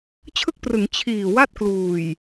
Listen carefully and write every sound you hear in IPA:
t͡ɕʰ ɯ˥˩ k̚ p r ɯ˩˦ ŋ t͡ɕʰ iː˨˩ w a˥˩ t̚ k l uː˨˩ j

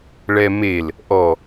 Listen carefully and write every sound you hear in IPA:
ɭ ɛ m e l | ʔ ɔ

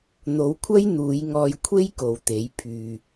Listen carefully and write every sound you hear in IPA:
n̪ o˨˧ w kʷʰ ɐ˥ j n̪ uː˨˧ j ŋ ɔː˧ j kʷʰ e˥ j k o˨˧ w t̪ e˨˥ j pʰ yː˨

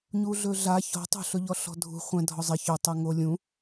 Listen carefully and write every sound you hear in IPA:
ɲ u ɮ ɵ ɮ a ç ɔ̤ tˤ o̤ ɬ ɵ ʎ ɔ ɬ ɔ̤ dʱ ṳ χʷ ɛ̃ dʱ ɔ zˤ ɪ ç ɵ tˤ ɤ ŋ o lʲ ũ

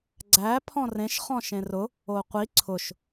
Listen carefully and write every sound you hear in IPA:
ɡ͡ǀ æ pʰ ɔ̃ r ẽ ʃ χ ɔ̃ ʃ ẽ r ʊ | o qʷ i ǀʰ ʊ ʃ

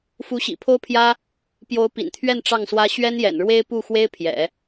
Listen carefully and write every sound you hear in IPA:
f u˧˥ ɕ ḭ˨˩ pʰ o˥ ʊ̯ pʰ j ä˥ | p j o˧˥ ʊ̯ p ḭ˨˩ n t̪ʰ ɥ ɛ˥˧ n ʈ͡ʂ ɑ˥˩ ŋ s w ä˥ ɕ ɥ ɛ˥ n j ɛ̰˨˩ n ɻ w e˥ ɪ̯ p u˥˩ x w e˥ ɪ̯ pʰ j ɛ̰˨˩˦

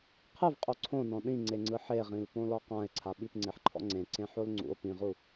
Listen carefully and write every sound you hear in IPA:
qʰ ɯ v qʼ o ǀʰ õ n ɔ̃ ɗ ĩ ŋ͡ǀ e ŋ͡ǀ ɯ ħ e ʁ ĩ l p õ l ɔ q ã e̯ ǀʰ a ɓ i p ŋ͡ǀ e ħ ǃʰ ɔ̰ ŋ͡ǀ ẽ ǀ ẽ ħ o l ŋ͡ǀ ṵ o̯ p ĩ ʁ u

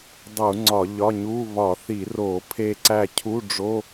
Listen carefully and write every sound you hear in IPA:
dˤ u˧˩˧ ŋ͡ǀ ɒ˧˩˧ ʎ ɒ˧˥˧ ɲ u˧˥˧ β ɒ˧˩˧ θ i˧˩˧ r o˧˩˧ pʰ e˦˨ ǀ æ˦˨ cʰ u˧˥˧ ɖ͡ʐ o˧˥˧

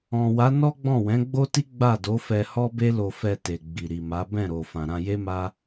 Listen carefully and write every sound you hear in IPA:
ɔ̃˨ w a˨˦ n ɔ˦ ɡ͡b ɔ̃˦˨ w ɛ̃˨˦ ɡ͡b o˦ t i˦ ɡ͡b a˦˨ d o˨˦ f ɛ˧ h ɔ˦ b e˦ l o˧ f ɛ˧ t e˨ ɡ͡b i˨ ɾ i˨ m a˨˦ b ɛ̃˦˨ ɾ o˨ f ã˨ ɾ ã˧ j e˦ m a˦

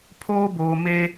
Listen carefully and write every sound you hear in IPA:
pʰ oː˦ b oː˨ m e˦

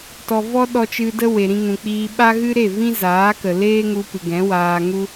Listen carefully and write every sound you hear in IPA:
t ɔ˨ v ɔ˦ ɗ ɔ˧ t͡ʃ ɨ˧ d ə˦ w e˨ ɾ ĩ˧ ŋ ũ˨ k͡p iː˧ ɓ a˦ ɣ ɨ˦ ɾ e˦˨ v ĩ˦ z aː˨˦ k ə˨ l eː˦ ŋ u˧ p ɨ˨ ɡ ɛ̃˨˦ w aː˧ ŋ u˦

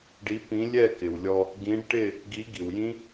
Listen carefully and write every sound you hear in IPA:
ɖ i˨˥ p ĩ˨˥ lʲ ɛ˥˨ k ɪ˩ w lʲ ɔ˧ | ɡ ĩ˨˥ ɖ ʈ ɪ˥˨ | ɡ i˨˥ ɡ i˩ w j ĩ˦˥

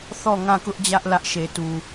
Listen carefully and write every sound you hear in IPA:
θ ɔ˦˨ ŋ ã˦˨ k ʊ˦ ʔ d͡ʑ ä˦ ʔ l ä˦ ʔ ʃ e˨ t u˨

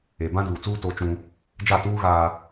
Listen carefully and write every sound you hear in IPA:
e˨ b ã˦ d uː˨ t͡s uː˦ t o˦ t͡ʃ ũ˦ | d͡ʒ a˦˨ t uː˦ ɣ aː˨

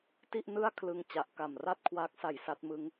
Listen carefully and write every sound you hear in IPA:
t i˥˩ ʔ n ɯ˥˩ a̯ kʰ l ɯ˧ ŋ t͡ɕ a˨˩ ʔ k a˨˩ m r a˥˩ t̚ kʰ w aː˦˥ k̚ s a˨˩ j s a˦˥ t̚ m ɯ˦˥ ŋ

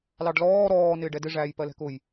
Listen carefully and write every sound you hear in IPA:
l ɑ ɖ l ɔː ɾ ɔː n ɪː ɖ ɛ d ɪ ʐ æː j p ɜ l ɛ̤ k ʊ j

